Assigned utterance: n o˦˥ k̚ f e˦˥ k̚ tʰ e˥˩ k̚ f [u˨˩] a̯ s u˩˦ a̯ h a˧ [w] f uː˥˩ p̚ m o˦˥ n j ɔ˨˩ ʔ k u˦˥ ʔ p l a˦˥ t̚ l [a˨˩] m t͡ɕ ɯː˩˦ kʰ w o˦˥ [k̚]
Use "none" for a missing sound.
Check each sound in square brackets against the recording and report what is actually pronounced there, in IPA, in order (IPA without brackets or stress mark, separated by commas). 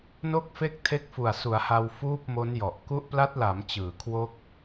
u˨˩, w, a˩˦, k̚